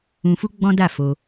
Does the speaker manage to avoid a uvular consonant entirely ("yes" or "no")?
yes